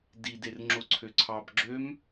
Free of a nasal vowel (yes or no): yes